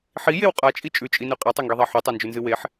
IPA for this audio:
ħijew qʼat͡ʃʼi t͡ʃʼʉt͡ʃʼinʉ qʼetˤɵŋɡiðˤa ħutˤand͡ʒʉnzɨ weħ

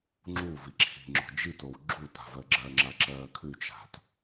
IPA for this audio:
ŋ͡ǁuvi ǁʰi̤ŋ͡ǁo̤ d͡ʒitow ɡ͡ǁuta̤vɜ ɡ͡ǁɜŋ͡ǁaǁɜː kʰʉt͡ʃa̤t

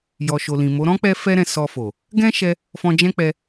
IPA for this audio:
jɔ˨ ʃo˨lĩ˨mo˨˦ ɾɔ̃˦k͡pɛ˧ fɛ˦ɾɛ̃˧ sɔ˧fo˨ | ɡɛ̃˦ʃɛ˧ | fɔ̃˧d͡ʒɛ̃˦k͡pɛ˧

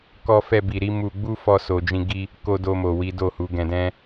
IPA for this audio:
kɔ˧fɛ˧bi˨ɾi˨˦ mu˧ ɡ͡bu˦fɔ˧ so˨d͡ʒĩ˧ ɡi˦ | ko˧do˧mo˨ wi˨˦do˦˨hu˨˦ ɡɛ̃˧dɛ̃˦

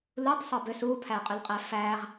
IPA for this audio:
lutˤ sˤɤbʏs upʰæ qʼʏlqʼæfæʁ

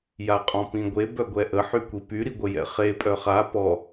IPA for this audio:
jaqʼɔ̃pĩɡʷe bœɡʷɛʔə ħykʷipy ɾiɡʷəjɛ̰χe pʼœχa pɔ

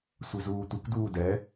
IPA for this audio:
sʷezuːtʷɨk duːdɛ

